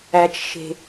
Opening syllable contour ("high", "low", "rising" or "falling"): low